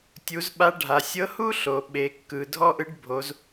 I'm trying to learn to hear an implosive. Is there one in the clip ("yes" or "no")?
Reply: yes